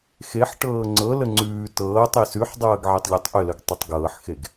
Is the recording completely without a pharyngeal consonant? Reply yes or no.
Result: no